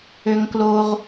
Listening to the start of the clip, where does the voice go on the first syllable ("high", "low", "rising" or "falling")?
low